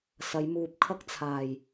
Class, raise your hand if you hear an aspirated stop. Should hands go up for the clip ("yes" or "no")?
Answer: yes